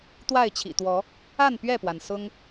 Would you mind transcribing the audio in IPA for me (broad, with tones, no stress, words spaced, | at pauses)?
t̪wa˥˨ɪ̯t͡ɕʰḭ˨˩t̪wɔ˨˦ | a˥˨n pɥɛ˥˨pwa˩n sʊ˦ŋ